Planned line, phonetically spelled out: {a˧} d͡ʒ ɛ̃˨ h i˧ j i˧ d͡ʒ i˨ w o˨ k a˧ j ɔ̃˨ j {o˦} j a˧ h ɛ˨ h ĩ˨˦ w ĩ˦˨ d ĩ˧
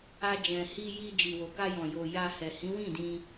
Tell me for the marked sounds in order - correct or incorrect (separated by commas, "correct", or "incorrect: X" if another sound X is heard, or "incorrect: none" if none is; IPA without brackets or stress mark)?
correct, incorrect: o˨